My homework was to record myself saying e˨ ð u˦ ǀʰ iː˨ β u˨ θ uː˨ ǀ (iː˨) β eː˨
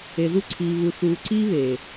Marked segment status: incorrect: iː˦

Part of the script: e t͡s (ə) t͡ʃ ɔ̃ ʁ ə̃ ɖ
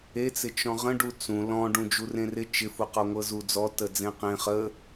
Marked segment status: incorrect: ɪ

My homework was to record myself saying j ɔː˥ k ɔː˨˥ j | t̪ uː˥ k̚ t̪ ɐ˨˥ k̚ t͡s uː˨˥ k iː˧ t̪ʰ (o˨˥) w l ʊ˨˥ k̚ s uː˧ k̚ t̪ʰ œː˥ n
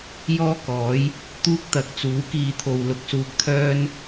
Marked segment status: incorrect: o˧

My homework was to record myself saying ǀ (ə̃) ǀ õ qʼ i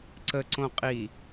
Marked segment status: incorrect: ə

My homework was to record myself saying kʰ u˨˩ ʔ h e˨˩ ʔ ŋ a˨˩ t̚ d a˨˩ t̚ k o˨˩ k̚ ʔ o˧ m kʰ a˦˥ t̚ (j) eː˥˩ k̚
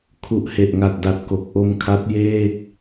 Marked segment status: correct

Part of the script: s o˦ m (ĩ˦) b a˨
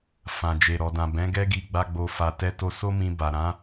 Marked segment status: incorrect: ĩ˧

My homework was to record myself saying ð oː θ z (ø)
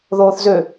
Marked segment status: correct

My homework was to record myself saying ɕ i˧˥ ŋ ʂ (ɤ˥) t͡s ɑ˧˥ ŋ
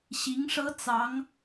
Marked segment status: correct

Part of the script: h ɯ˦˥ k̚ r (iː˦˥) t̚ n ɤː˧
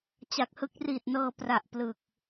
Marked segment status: incorrect: iː˨˩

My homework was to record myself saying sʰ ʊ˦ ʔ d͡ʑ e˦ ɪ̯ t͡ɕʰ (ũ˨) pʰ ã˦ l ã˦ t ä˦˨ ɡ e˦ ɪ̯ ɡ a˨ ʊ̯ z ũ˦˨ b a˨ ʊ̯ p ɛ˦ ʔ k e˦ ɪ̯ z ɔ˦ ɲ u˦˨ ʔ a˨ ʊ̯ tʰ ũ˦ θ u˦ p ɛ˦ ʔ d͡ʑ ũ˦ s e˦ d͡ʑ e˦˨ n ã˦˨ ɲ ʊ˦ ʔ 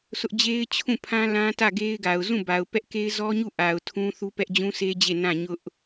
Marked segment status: incorrect: ũ˦˨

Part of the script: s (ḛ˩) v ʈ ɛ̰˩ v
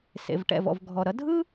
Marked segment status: correct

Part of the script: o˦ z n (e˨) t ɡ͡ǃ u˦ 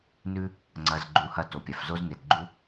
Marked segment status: correct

